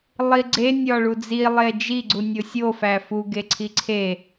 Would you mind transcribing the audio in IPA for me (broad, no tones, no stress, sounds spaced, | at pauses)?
lˠ i ɡ͡ǀ e nʲ ɒ ɭ u d͡z i lˠ e d͡ʒ i ɡ͡ǀ u nʲ o sʲ o f æ f u ɡ e ǀʰ i ǀʰ e